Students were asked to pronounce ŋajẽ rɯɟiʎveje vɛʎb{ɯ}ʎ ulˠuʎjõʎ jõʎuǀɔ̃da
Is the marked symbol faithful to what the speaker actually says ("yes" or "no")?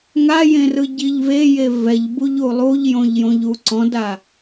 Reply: no